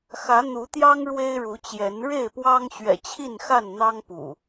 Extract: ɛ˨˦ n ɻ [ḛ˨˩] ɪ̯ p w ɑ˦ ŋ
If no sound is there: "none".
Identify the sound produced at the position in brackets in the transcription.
e˥˨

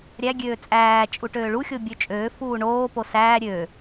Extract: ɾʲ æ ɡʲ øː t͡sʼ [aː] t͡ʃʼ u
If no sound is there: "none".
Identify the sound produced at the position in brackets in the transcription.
æː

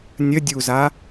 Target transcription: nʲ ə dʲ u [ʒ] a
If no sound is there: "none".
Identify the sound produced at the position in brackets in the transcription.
z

